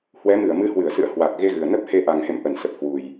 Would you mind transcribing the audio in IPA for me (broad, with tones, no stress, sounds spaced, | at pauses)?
h w ɛ˨˦ m ɨ˧˩ ə̯ m ɨ˨˦ h w ɨ˧˩ ə̯ s ɨ̰˧˨ ə̯ h w a˨˩ k̚ ɣ e˧ ɣ ɨ˨˩ ə̯ n ə˦˥ p̚ h e˧ ʔ a˨˩ ŋ h ḛ˧˨ m ʔ ə˧˩ n s ə˨˩ p̚ h w u˨˩ j